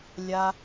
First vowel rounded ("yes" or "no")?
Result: no